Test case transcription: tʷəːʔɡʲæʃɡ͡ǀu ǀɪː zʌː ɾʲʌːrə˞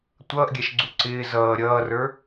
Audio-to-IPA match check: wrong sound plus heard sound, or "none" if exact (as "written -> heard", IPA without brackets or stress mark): əː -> ʌː